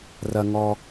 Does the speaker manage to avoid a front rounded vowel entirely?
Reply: yes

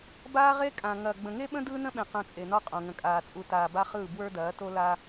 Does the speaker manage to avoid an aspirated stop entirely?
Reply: yes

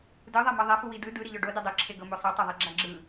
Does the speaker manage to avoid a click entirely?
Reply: no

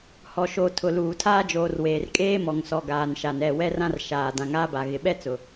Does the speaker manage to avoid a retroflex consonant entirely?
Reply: yes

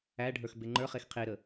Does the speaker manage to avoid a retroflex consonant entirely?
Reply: no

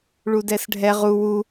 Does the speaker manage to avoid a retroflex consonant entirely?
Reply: no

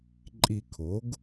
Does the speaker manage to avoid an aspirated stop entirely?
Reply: no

